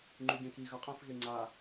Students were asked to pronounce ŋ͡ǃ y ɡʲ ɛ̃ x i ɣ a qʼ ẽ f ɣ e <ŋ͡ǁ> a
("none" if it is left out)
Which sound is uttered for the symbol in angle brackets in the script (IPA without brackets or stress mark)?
ŋ͡ǀ